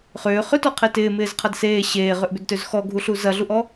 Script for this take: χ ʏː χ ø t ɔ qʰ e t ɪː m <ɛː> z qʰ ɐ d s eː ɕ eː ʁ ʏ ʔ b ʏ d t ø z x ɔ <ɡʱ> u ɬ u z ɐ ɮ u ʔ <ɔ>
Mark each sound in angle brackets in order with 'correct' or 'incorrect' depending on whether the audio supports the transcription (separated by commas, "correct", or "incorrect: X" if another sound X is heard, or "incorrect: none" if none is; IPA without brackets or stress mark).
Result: incorrect: ɪː, correct, correct